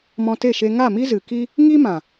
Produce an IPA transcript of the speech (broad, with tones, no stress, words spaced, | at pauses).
mɔ̃˧te˦˨ʃe˧ ŋa˦˨mi˦zɨ˨ki˦ | ŋi˦mã˨